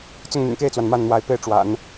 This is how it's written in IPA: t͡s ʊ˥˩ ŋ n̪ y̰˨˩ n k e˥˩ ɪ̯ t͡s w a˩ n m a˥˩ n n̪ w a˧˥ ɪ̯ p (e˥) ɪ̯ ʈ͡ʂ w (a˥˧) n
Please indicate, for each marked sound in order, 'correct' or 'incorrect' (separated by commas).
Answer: incorrect, incorrect